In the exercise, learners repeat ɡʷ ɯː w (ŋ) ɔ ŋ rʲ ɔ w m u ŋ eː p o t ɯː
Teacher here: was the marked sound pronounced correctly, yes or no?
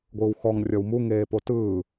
no